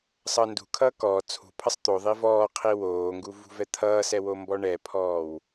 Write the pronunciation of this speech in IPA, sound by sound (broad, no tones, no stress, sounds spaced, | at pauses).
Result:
sˤ ʌː n d ṳ kʰ ʌː k ɔ t͡sʰ ṳ pʰ ʌ sˤ t̪ o ðˤ i v ɔː qʰ i w oː ŋ ɡ u v ṳ v ɛ t̪ʰ ʌː s ɛ w o m b ɔ ɳ ɛ pʰ ɔː w